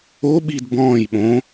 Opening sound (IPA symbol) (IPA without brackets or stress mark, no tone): o